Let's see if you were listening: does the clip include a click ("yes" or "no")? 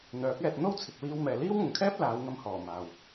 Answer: no